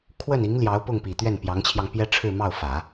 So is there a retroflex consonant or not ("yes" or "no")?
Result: yes